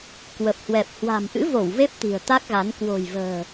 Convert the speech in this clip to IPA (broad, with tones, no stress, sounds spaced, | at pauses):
k w ə˨˩ p̚ h w ɛ˨˩ p̚ h w a̤˨˩ m ʔ ɨ̰˧˥ v o˧˩ w v e˦˥ p̚ t̪ i̤˨˩ ə̯ t̪ a˦˥ k̚ ɣ a˨˦ n k w o̤˨˩ j v ə̤ː˨˩